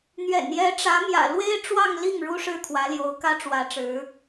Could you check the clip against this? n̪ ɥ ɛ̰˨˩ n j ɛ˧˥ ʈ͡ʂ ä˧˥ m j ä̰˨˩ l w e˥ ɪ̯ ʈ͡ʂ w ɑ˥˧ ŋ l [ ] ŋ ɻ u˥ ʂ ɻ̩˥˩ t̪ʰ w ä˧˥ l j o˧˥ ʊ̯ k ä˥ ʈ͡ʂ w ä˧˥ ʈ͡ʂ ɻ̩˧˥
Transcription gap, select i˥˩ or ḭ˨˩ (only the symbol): i˥˩